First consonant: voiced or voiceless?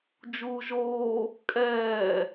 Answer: voiced